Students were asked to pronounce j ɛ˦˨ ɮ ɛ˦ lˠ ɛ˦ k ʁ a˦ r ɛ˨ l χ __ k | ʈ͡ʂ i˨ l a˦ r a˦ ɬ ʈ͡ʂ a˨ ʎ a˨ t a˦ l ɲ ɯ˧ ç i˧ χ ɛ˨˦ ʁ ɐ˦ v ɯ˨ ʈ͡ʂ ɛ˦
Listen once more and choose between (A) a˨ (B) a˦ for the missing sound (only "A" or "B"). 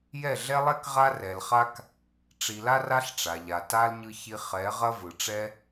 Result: B